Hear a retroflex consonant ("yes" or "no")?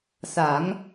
no